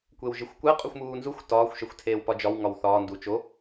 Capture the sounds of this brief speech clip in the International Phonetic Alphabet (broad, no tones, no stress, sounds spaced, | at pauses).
kʷ e w ʒ i xʷ kʷ æ qʼ u xʷ m uː n z u xʷ t ɒː xʷ ʃ e xʷ tʰ eː w p ɒ d͡ʒ ɒ w ŋ ɒ w θ ɒː n d u t͡ʃ o